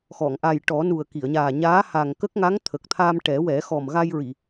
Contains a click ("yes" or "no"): no